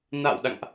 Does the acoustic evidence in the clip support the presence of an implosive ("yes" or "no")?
yes